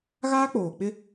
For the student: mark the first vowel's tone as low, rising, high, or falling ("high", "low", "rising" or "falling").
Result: high